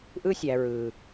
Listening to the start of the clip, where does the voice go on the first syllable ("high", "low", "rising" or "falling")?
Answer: high